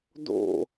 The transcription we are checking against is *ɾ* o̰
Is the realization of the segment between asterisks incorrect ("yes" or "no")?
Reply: yes